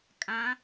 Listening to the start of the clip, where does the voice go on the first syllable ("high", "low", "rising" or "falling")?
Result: rising